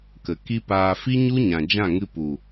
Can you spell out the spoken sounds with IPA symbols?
k ə˨ k i˦ p aː˧ f i˦ ɲ u˦ ɲ ã˨ d͡ʒ ã˦˨ ŋ ɨ˧ p u˨

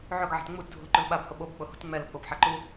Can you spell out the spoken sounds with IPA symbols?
ʕ ɵ ɡ ʕ a̤ t ŋ͡m u t dʱ ṳ l ǃ ʊ l ɓ a b h ʊ ɓ o b k͡p ʊ h ṳ t ŋ͡m ɛ l ʊ k͡p ʊ p ħ a ǃ u

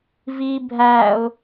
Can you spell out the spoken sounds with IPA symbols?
v i bʱ æ ʊ̯

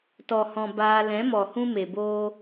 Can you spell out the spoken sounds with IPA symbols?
t ɔ˨ h ɔ̃˨ b aː˧ l ɛ̃˨˦ m ɔ˨ h ũ˧ m e˨ b oː˦

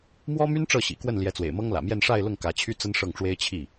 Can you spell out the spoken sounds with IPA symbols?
m w ɔ˥ m y˥ n ʈ͡ʂ ɤ˥˩ ɕ ḭ˨˩ k w ə˥˩ n l j ɛ˧˥ t͡s w ḛ˨˩ ɪ̯ m ɤ˥ ŋ l ä̰˨˩ m j ɛ˥˧ n ʂ a˥˧ ɪ̯ l ʊ˥˩ ŋ k ä˧˥ t͡ɕʰ y˥ t͡s ə˥ n ʂ ɤ˥˩ ŋ ʈ͡ʂ w e˥ ɪ̯ t͡ɕʰ i˥˩

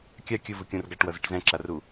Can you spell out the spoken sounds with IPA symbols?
kʲ a kʲ ɯ v ɯ kʲ ũ r ɡ a ʈ w ʌ z e ʈ z ɛ̃ ǁ a r u

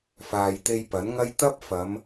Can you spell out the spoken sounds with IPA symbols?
f aː˨ j t̪ e˧ j p ɐ˨˥ n ŋ ɐ˥ j t̪ ɐ˥ p̚ f ɐ˨˧ m

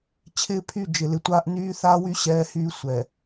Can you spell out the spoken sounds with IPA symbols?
t͡ɕʰ ɪː˦ pʰ y˦˨ d͡ʒ ɪ˨ l ɪ˨ tʷ aː˦ ʔ n yː˦ θ aː˦ w y˦ ɕ ɛː˦ h yː˦ sʷ ɛ˨

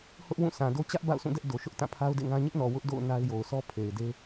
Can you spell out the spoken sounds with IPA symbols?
h ʊ˦ ʔ w ũ˦˨ s ã˨ d o˦ t͡ɕ ä˦ ʔ b a̰˦˨ ʊ̯ s ũ˦˨ d ɛ˦ ʔ d o˨ ʃ ʊ˦ ʔ t ã˦˨ pʰ a˦ ʊ̯ d ḛ˦˨ ŋ ã˦ ɲ ɪ˦ ʔ n ɔ˨ w ʊ˦ ʔ d o̰˦˨ ʊ̯ n a˦ ɪ̯ j o˨ ʊ̯ s ɔ˦ pʰ e˨ ɪ̯ d e˦

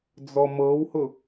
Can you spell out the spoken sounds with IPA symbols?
d͡z ɔ m ɤ w h ʊ

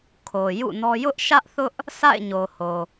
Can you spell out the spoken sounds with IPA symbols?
kʰ o˨ j ṵ˦˨ n ɔ˦ j ʊ˦ ʔ ʃ ä˦ ʔ θ ʊ˦ ʔ | s a̰˦˨ ɪ̯ ɲ o˨ h o˨

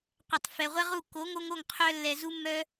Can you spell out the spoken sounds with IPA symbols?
qʷ ɛ˨ tˤ f ɛ˨ ʁʷ ɛ˦ ʁ u˦˨ k o˨˦ ŋ o˧ ŋ o˦˨ ŋ qʰ œ˧ lː ɛ˨ z u˦ mː œ˦

